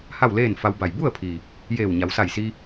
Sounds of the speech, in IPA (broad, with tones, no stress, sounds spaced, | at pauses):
h a˥˨ w l eː˥˨ n f a˧ w b a˧˩ j b u˥˨ ə̯ pʰ i˩ | j eː˧˩ w ɲ a˩˧ w s a˧˩ j s i˧